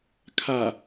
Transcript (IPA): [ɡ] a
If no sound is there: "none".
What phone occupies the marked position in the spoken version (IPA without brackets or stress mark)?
kʰ